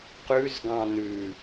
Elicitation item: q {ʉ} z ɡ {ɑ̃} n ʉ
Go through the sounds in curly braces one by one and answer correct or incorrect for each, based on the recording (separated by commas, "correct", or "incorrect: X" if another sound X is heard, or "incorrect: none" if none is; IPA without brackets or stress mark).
correct, correct